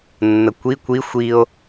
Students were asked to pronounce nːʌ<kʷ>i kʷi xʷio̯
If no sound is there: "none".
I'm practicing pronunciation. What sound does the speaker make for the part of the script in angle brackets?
kʷ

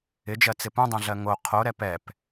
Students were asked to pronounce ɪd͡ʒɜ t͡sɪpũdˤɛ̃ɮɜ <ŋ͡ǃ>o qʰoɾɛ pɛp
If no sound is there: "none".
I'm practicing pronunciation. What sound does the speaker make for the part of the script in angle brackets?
ŋ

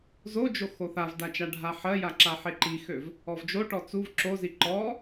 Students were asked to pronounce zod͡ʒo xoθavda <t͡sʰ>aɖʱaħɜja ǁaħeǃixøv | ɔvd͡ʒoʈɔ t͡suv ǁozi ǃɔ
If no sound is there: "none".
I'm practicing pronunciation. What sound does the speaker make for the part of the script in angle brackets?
t͡ʃ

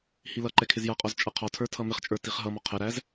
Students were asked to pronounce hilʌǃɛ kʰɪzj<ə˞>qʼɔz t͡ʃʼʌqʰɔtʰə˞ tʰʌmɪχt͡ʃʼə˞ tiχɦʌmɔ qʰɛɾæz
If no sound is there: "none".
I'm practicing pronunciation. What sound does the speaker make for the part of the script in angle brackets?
ʌ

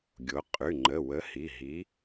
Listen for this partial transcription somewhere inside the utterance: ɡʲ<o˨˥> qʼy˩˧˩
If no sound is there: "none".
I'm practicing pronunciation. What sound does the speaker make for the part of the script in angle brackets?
o˨˥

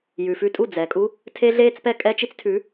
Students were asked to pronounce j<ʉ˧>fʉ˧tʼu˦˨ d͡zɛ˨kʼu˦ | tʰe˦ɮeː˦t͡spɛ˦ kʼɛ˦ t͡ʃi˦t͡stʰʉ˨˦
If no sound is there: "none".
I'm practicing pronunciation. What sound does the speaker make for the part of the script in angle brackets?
ʉ˨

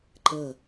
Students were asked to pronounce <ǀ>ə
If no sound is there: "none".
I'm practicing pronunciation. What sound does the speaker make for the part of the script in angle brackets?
ǃ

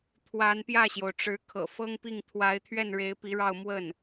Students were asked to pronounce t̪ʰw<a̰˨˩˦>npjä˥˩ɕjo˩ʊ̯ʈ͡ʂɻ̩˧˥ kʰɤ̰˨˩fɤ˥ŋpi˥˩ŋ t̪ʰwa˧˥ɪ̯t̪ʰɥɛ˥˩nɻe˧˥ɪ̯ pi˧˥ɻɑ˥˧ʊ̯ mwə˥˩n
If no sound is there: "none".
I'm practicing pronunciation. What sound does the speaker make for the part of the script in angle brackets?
a˧˥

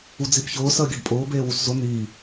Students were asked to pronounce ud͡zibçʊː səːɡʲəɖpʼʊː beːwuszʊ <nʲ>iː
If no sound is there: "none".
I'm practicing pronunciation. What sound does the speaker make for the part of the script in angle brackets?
n̪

